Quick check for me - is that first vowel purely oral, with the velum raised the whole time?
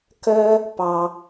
yes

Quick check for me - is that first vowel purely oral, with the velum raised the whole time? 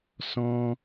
no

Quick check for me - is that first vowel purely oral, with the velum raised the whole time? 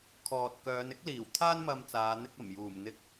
yes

